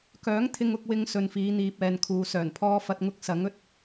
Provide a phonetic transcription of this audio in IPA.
kœː˨˥ŋ t̪ʰɪ˨ŋʊ˨k̚wɪ˨ŋ sɵ˨nfiː˨˧n̪iː˨p̚ ɛː˨nkʰuː˨sœː˨˩n pʰɔː˧fɐ˧t̚ŋʊ˧k̚ sɐ˨˥ŋɵ˧t̚

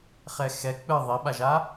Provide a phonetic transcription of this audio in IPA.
χɛxɛ k͡pɨ ðˤiɓaʒa

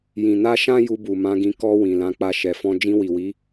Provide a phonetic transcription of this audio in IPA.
jĩ˨na˧ʃã˦ ju˧bu˨mã˨˦ɡĩ˧ kɔ˧ wĩ˨lã˨˦k͡pa˧ ʃɛ˨fɔ̃˧ d͡ʒĩ˧wi˨wi˨˦

